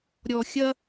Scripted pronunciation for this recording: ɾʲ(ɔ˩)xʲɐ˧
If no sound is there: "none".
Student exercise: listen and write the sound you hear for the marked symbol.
ɔ˩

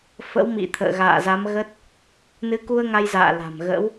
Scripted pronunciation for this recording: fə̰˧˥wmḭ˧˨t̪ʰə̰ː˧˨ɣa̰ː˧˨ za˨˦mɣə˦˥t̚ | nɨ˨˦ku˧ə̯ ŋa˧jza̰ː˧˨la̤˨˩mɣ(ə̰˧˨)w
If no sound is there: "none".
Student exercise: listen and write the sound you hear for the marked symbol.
ə̰˧˥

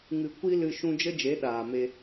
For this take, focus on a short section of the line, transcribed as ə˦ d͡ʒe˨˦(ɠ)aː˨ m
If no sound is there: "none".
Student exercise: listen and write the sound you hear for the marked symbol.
ɗ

